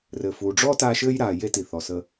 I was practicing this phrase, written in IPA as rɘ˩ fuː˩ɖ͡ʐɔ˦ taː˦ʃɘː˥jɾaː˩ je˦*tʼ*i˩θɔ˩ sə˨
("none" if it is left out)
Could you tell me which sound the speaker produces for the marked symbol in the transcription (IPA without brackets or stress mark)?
t